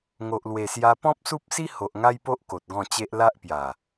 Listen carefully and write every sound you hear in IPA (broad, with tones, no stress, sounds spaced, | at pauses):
ŋ o˨ ʔ l w e˨˩ s j a˧ p ɔ̃˦ p̚ s u˦ p̚ s i˦ h o˨ ʔ ŋ a˦ j p o˦ ʔ k o˨ t̚ ɡ ɔ̃˥˧ t͡ɕ e˦ ʔ l a˦ ʔ p j a˨˩